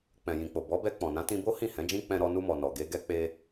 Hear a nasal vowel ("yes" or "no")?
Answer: yes